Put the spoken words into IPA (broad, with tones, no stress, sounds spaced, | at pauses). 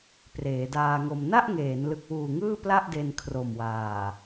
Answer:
p r eː˩˦ d aː˧ ŋ o˧ m n a˥˩ ʔ ŋ eː˩˦ n l ɯ˨˩ k̚ w uː˨˩ ŋ ɯː˥˩ p l a˥˩ ʔ d e˧ n kʰ r o˨˩ m w aː˨˩